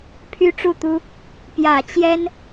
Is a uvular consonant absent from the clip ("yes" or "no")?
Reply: yes